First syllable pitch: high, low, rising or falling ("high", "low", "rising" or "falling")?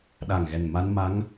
low